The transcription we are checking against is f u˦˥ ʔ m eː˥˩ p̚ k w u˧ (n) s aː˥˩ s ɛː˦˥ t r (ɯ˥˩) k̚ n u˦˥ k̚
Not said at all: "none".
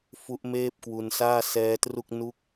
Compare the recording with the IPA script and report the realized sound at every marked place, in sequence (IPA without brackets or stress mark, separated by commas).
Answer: n, u˥˩